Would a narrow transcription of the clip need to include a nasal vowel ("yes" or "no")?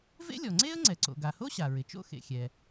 no